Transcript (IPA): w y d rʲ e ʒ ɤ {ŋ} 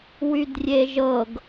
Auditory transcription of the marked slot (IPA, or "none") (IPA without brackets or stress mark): ɡ